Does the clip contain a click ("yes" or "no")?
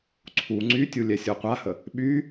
yes